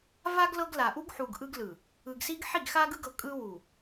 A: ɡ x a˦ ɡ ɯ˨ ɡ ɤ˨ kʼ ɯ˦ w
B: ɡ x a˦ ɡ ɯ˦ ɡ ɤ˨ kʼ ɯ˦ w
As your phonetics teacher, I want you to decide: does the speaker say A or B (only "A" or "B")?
B